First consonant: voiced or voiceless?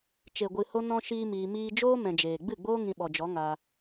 voiceless